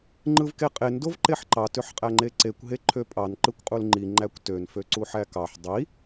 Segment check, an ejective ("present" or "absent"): present